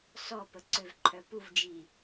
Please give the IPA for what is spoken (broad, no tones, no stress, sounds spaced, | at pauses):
s ɔ p ə ǀ ø v ǃʰ œ p u v d͡ʒ i